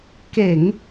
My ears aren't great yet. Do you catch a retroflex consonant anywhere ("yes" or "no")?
no